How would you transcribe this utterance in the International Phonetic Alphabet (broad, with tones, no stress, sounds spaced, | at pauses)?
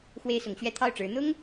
x w e˥ ɪ̯ s ʊ˧˥ ŋ ɕ ɥ ɛ˥ t̪ʰ ɑ˥˩ ʊ̯ ʈ͡ʂ ɻ̩˧˥ n̪ ʊ˥ ŋ